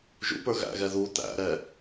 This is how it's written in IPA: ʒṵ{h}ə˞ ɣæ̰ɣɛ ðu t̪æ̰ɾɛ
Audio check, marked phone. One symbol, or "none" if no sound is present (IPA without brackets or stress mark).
p